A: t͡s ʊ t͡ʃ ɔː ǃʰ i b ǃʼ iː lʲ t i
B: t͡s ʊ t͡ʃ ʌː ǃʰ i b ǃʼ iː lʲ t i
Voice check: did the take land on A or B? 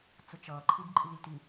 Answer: B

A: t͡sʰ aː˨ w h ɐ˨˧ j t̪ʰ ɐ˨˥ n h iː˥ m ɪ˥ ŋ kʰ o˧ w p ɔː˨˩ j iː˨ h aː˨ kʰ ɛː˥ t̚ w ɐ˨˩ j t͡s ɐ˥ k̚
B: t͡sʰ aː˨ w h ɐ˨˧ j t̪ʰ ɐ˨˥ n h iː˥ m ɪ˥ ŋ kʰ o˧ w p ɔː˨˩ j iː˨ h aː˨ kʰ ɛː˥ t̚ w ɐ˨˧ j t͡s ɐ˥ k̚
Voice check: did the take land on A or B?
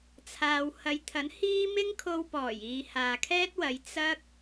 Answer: B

